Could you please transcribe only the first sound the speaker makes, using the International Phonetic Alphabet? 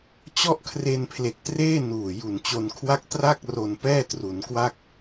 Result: t͡ɕ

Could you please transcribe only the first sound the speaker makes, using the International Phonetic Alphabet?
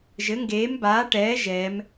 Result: ʒ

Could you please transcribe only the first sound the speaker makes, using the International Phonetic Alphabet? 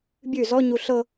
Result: bʲ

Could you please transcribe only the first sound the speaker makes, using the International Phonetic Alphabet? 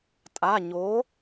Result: tʼ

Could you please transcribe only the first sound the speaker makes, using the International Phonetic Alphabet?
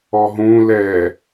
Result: ɔ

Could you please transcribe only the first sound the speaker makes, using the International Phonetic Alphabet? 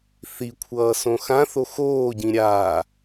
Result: θ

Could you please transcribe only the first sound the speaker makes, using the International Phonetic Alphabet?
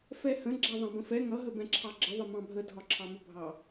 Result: f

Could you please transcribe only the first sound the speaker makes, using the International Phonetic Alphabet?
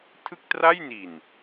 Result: tʰ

